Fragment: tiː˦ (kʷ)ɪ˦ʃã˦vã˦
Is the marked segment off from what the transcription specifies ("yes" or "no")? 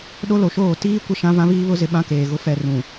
no